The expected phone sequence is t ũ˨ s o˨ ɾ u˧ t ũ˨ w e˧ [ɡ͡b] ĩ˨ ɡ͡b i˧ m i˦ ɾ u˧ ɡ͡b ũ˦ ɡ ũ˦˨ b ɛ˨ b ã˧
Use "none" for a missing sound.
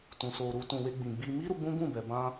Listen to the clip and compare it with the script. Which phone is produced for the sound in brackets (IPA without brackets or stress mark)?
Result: ɡ͡b